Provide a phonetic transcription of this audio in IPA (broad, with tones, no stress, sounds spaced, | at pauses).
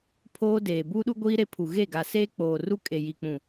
pʰ oː˦ d eː˨ b uː˦ ɗ u˦ ɡʷ iː˦ ɾ e˦ pʰ u˨ ɣ e˦˨ ɡ a˨ s eː˦ k͡p oː˨ r u˦ kʼ e˨ j i˨ k͡p ũ˨